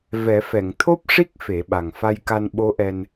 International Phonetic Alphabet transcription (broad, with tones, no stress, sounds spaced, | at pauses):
v ɛ˨˩˦ f ɛ˨˩˨ ŋ t̪ʰ o˦˥ p̚ ʂ i˦˥ k̚ f e˨˩˦ ɓ a˨˩ ŋ f a˧ j k a˧ n ɓ o˧˥ ʔ ɛ˧ n